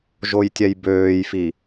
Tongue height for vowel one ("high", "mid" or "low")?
mid